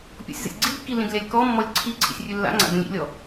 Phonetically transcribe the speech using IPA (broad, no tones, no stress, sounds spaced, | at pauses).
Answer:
pʲ ɔ̰ sʲ z ə̰ sʲ ɡ͡ǀ i d kː i l ĩ d lʲ a lʲ k ɔ mː ɔ lʲ ǀʰ i ǀʰ ḭ sʲ rʲ ʉ lː a̰ ŋ͡ǀ a̰ d ə̃ lʲ ḭ lʲ ɔ